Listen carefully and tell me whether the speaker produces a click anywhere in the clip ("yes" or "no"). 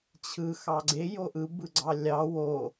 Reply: yes